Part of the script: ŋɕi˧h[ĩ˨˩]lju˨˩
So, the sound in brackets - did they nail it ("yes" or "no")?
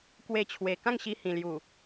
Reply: yes